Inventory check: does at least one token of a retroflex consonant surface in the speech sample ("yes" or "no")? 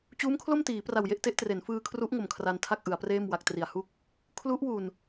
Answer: no